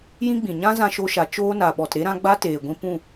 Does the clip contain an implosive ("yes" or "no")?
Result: yes